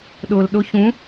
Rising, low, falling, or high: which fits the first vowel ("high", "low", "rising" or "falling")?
low